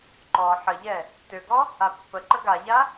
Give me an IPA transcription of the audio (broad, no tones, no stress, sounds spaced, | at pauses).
ǃ ɔ ħ ə ʎ ɛ | t ø ɡ ɔ | a pː ə ǃ ə ɡ a ʎ a